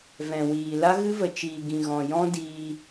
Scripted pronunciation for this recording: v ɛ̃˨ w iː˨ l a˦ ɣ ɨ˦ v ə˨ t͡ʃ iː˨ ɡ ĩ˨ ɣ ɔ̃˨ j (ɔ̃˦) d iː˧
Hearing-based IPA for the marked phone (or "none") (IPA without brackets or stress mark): ɔ̃˦